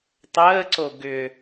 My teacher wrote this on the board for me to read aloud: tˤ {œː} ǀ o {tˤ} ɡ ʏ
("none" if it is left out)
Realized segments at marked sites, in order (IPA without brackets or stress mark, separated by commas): əː, none